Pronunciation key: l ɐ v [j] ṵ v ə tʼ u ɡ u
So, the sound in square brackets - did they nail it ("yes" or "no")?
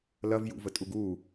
yes